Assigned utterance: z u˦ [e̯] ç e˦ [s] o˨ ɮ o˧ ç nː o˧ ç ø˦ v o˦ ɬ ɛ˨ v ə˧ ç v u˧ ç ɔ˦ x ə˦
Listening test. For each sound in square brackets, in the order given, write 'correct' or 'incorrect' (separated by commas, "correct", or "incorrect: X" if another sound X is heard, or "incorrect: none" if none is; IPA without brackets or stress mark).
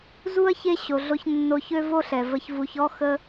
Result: incorrect: ɐ̯, incorrect: ɕ